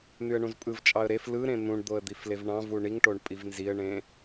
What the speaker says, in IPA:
n̪yə̯ɳũzpʼɯvt͡ʃʼɑə̯ ɾef lɯɾẽ n̪ũɳd̪oə̯ d̪iflevɳɑ̃vu ɳiŋʈoɳ pʼivnziə̯ɳẽ

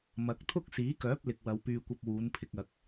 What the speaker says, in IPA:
mɐ˨˥k̚t̪ʰʊ˥k̚siː˨˥kœː˨˥p̚ lɪ˨k̚wɐ˨˧wpyː˧kʷɐ˧p̚ wuː˨˥npʰɪ˧k̚ɐ˨k̚

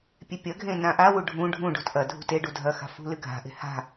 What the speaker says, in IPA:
pʲepʲɐɡʱẽ nãʔawu ɖʱũ ɖʱũɖṳt ʔɐ dʱṳte ɖudʱɐxa̤ fṳlɨ ɡʱa̤ʔe̤ ha̤

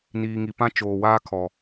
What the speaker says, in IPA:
niː˨ŋi˨pã˦ t͡ʃoː˨waː˦kʰɔ˨

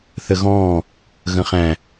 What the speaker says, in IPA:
θəɣɔ̃ː | ɣə̃χæ̃

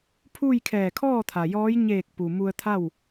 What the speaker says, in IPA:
pʰu˥˨j kʰɛː˧˩kʰɔː˥˨ t̪ʰa˩jɔː˧˥j ɲeː˧˩k̚pu˩ mu˧ə̯t̪ʰa˥˨w

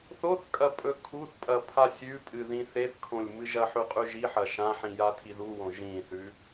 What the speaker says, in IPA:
θoθkʼɐ pʼɵkʰuθpʼɐ pʰasʲʉpʼɨ ðĩθeθkʰõlʲ mɨʒɐħʉ qʼʉʒiħɐ ʃãħĩ jatʰiðuwõ ʒĩθʉ

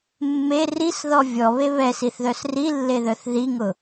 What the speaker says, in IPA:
mːe risðɔ vʲɔβe βɛsiθðœs rilːeðœθ ðiŋʊ

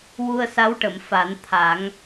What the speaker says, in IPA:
wu˧ə̯sa˧˥wʈə˨˩˨m fa˨˩˦n t̪ʰa˨˩˦ŋ

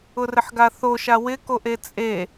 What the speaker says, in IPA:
ʊrɪħɡaθo ʃawɪ koʔet͡sʼe

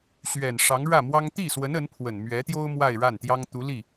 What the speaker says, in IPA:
ɕɥɛ˨˩nʂɑ˧˥ŋɻä˥˩ mwɑ˥ŋ t̪i˥˩swə˧˥n ə˧˥npʰwə˨˩n mɥɛ˧˥t̪jo˥ʊ̯ mwa˥˧ɪ̯ɻa˥˩nt̪jɑ˥ŋt̪u˧˥ li˥˩

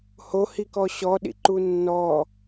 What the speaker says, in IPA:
hohikɔ ɕɔɗḭ ǃunːɔ

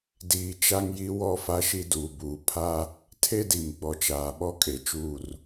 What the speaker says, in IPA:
diː˨ t͡ʃa˦ŋji˦ wɔ˦˨fa˦ʃi˦ duː˨buː˨ pʰa˦ | tʰe˦di˨m ɡ͡bɔ˨t͡ʃaː˨ɓɔ˦ kʼe˨t͡ʃuː˦˨r

